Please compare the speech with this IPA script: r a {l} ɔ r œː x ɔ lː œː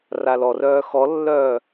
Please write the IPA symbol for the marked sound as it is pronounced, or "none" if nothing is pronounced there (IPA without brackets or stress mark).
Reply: l